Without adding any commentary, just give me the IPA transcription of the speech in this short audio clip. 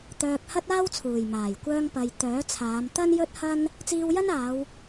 t̪ œː˧ k̚ h ɐ˥ t̚ aː˥ w t͡sʰ uː˨˩ j m aː˨˩ j kʷ œː˧ ŋ p ɐ˨ j t̪ œː˨˥ t͡sʰ aː˨˧ m t̪ ɐ˥ n j ɵ˥ t̚ h ɐ˥ n | t͡s iː˧ w j ɐ˥ n aː˨˧ w

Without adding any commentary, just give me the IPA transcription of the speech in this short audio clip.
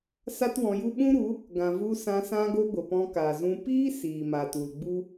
s a˦ t w ɔ̃˧ j u˦ ɓ ũ˦ ɾ u˨˦ | ɡ ã˨ v u˧ s ã˧ s ã˦ ɡ o˦ ɡʷ ə˨ p ɔ̃˧ k aː˨ z ũ˧ p iː˦ s iː˨ m a˨ t u˨ l ɡ͡b u˦

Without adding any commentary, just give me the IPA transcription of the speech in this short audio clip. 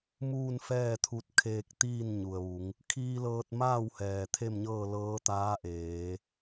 m uː˥˨ n f ɛː˥˨ t̪ʰ u˧ t̚ kʰ eː˧ k̚ t̪ iː˥˨ n ɲ u˩ ə̯ ʋ u˩˧ ŋ | kʰ iː˧ l ɤː˧ t̚ m aː˥˨ w h ɛː˩ t̪ʰ e˥˨ m ɲ ɤː˥˨ l ɤː˧˥ t̪ aː˧˥ ʔ eː˩˧

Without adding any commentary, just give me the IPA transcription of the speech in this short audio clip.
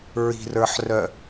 ɹ i̤ r ə˞ ħ r œ

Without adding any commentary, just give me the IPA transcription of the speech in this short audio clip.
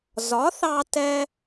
z ɒ˩˥ θ ɑ˧ t ɛ˧

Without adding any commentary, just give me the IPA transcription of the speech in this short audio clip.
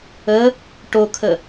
ə | ʈ o kʰ ə

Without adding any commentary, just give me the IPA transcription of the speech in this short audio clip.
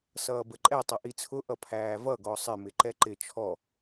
s ʌː b ə ǃʼ ɛ tˤ ʌ ʔ i t͡sʰ ʊ ʔ ʌ pʰ æː v ʌ ɡ ɔ sˤ ɪ m ɪ ǃ ɛ ǃ ɪ t͡ʃʰ ɔ

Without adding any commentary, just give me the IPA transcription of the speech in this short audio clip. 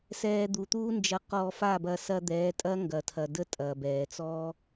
s ɛː˧ d̪ u˨ t̪ uː˦ n d͡ʒ ɐ˧ q ɔː˧ f a˦˨ b ɐː˧ s ɐː˧ d̪ ɛː˨˦ tʼ ɐː˦ ŋ ɡ ɐː˨ tʰ ɐ˨ d ə˦ tʼ ɐː˨ b ɛː˨ t͡s ɔ˦

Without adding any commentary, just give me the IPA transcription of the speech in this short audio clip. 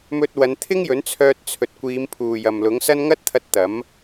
m ɵ˧ t̚ w ɐ˨˧ n t̪ʰ ɪ˥ ŋ j ɵ˨˥ n t͡sʰ œː˧ t̚ t͡sʰ ɵ˨ t̚ kʷ iː˨˧ m pʰ uː˨ j ɐ˨ m l ʊ˨˥ ŋ s ɐ˥ n ŋ ɐ˥ t̚ t̪ʰ ɐ˧ t̚ t̪ ɐ˨˥ m

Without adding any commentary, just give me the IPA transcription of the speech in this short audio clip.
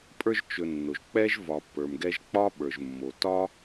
pʼ ə˞˦ ʒ t͡ʃ ɵ˨ nː o˩ ʒ k͡p ɛ˥ ʒ v ɒ˨ pː ə˞˩ m ɡ ɛ˦ ʒ k͡p ɒ˥ ɓ ə˞˩ ʒ mː o˩ t ɒ˥

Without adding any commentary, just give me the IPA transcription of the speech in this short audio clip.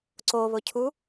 ǀ o β ʊ cʰ u

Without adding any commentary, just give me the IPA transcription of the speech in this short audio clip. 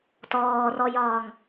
t ɔː r ɔ j ɒː ŋ

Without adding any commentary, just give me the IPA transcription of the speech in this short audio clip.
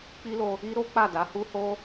k͡p i˦ l o˧ | i˦ ɾ o˦ k͡p a˦˨ d a˨˦ h u˦ h o˦

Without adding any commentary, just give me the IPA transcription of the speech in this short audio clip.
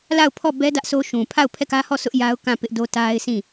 l a˦˨ ʊ̯ pʰ ɔ˦˨ b ɛ˦ d ä˦ ʔ sʰ o˦ ʃ ũ˨ pʰ a˦˨ ʊ̯ pʰ ɛ˦˨ k ä˦ h ɔ˦˨ sʰ ʊ˦ ʔ j a˦ ʊ̯ k ã˦˨ p ɪ˦ ʔ d o˦ t a˦ ɪ̯ sʰ ĩ˦˨

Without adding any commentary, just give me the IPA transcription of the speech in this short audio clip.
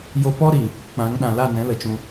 j o˧ p ɔ˦ ɾ i˨ | k͡p ã˨˦ ŋ ɗ ã˨ l a˦˨ n ɛ̃˨˦ l ə˨ t͡ʃ ũ˧

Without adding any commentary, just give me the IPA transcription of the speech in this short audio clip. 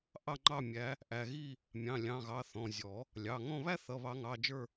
ʔ ɑ˦˨ ŋ͡ǃ ɑ˦˨ mʲ æ˨˦ | ʔ æ˩˧˩ ɣ i˦˨ | mʲ ɑ̃˩˧˩ lʲ ɑ̃˩˧˩ ɣ ɑ˩˧˩ θ ɔ̃˩˧˩ zʲ ɔ˨˩˦ | lʲ ɑ˩˧˩ ŋ ɔ̃˦˨ β æ˥ θ ʌ˩˧˩ β ɑ˨˩˦ ŋ ɑ˩˧˩ d͡ʒ ə˞˦˨

